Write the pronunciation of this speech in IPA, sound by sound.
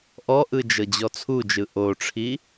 ʔ ɔ ʔ ɯ d͡ʒ ɤ d͡ʑ ɔ t͡sʰ u d͡ʒ ɯ ʔ o ʈ͡ʂʰ i

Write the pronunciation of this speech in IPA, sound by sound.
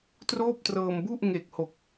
t r oː˥˩ p̚ t r ɤː˧ m b u˥˩ ʔ ŋ e˨˩ k̚ h o˨˩ k̚

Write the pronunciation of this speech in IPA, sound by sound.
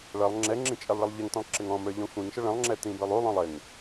ɭ ʌ lˠ ŋ͡ǁ ɛ ŋ͡ǁ ĩ t͡ʃʼ ɛ lˠ ɭ ɪ lˠ ʎ ɛ ŋ t̪ ə̃ lˠ ǁ ɪ ŋ ɔ̃ m ə˞ ʎ ɔ̃ xʷ ĩ ŋ ʃ ə ɭ ə̃ lˠ ŋ͡ǁ ɛ t̪ ĩ b ə˞ lˠ u lˠ ɔ̃ lˠ ɪ ŋ

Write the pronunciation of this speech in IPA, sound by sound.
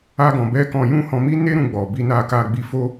a˦ ɡ ɔ̃˧ b ɛ˦ k ɔ̃˧ j ũ˦ h ɔ̃˧ m i˦ n e˦ ɾ ũ˧ ɡ͡b ɔ˨ b i˧ n a˧ k a˧ ɡ͡b i˧ f o˦

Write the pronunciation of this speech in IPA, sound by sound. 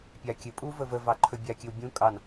pʲ a kʲ ɘ pʼ u v ə v ə v ɑ ǃʰ ɵ bʲ a kʲ ɘ w bʲ ũ kʼ ɑ n

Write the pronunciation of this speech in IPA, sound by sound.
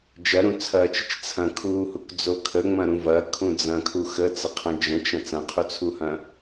d͡ʒ ɐ ɾ ũ t͡sʰ ɐː t͡ʃ ə t͡ʃ t͡sʰ ɐ̃ kʰ uː h u k d͡z o kʰ ə ŋ͡m ɐ̃ ɾ ũ v ɐ kʰ ũ d͡z ɐ̃ kʰ u x ə t͡s ə qʰ ɐ̃ d͡ʒ ə̃ t͡ʃ ɐ̃ t͡s ɐ̃ qʰ u t͡sʰ u h ɐ̃

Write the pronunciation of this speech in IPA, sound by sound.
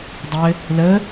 dˤ ɘ | l ə

